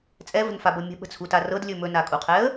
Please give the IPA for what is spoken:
t͡sʼɛvə̤nfabɤ mʲə̤ɓə̤t͡sʰuta rɤdlʲɵ mɵnakʼuqʰɛə̯

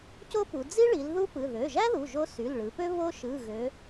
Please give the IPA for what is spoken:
co˥pu˩˧ d͡zi˥ɭi˩˧l ðu˥pɯ˩˧˩ ðø˩˧˩ʒæ˥ðu˩˧˩ ʒo˥ sy˩˧˩lɭɯ˩˧pø˥ βo˥ ʃɯ˩˧˩ɣø˩˧

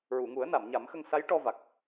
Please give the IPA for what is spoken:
ɹu˨˩˨ŋu˨˩˦ə̯ na˨˩˨m ɲa˨˩˦mxə˧ŋ sa˧˥jʈɔ˧ va˨˩k̚

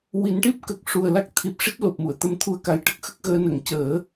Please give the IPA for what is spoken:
wi˨˩˦nʈi˦˥p̚kə˨˩k̚ ʂu˨˩ə̯la˦˥k̚t̪ʰi˨˩p̚ ʂi˦˥t̚lo˨˩p̚mu˨˩˨ə̯ t̪ə˧mt̪ʰu˧ə̯ka˨˩jʈə˦˥k̚ xə˦˥k̚ɣəː˧ nə˨˩˨ŋcəː˨˩˦

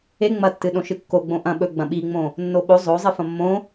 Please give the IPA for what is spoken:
e ŋ͡mɐtːɨ ɗõʃɨkːo ɡ͡bõʔɐ̃ ɓɵ ɡ͡bɐ̃ɓiŋ͡mõ | nːoɓo zˤozˤɨ fɐ̃mːõ

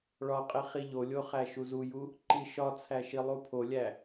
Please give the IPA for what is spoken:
ɭɒqʼi χiʎolʲo χæʃuzuju | ǃiʃɒt͡sʰæ ʃilˠupʰolʲæ

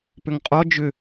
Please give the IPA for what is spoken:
pʏŋqʼɔ d͡ʒʏ

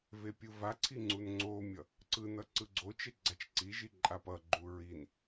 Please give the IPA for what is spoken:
vepʲɯvaǀʰi ŋ͡ǀunŋ͡ǀomʲʌ | ǀɯnʌ ǀɯɡ͡ǀot͡ʃe ɡ͡ǀat͡ʃǀiʒi ǃʼapʌɡ͡ǃu ɹin

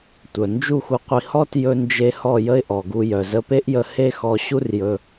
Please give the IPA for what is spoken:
tʷœ˨nd͡ʒu˦˨xu˧qʷi˧ hɔ˦tjɵ˧nd͡ʒe˧ hɔ˦˨ jə˦ɪ̯ʔɔ˨ɡu˧jœ˨ zə˧pe˦ʔjə˧ he˦xɔ˧ ɕu˦rjɵ˧

